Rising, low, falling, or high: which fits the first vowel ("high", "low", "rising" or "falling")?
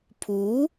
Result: rising